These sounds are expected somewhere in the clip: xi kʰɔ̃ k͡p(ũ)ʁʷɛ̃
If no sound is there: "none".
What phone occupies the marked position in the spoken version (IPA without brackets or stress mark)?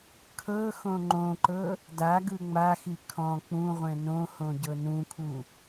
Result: ũ